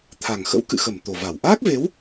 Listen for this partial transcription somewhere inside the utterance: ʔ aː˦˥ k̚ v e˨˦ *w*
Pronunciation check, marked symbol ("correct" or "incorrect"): correct